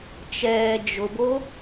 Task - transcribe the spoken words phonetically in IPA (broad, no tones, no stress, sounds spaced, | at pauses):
t͡ʃ ɛː d͡ʒ ʊ b o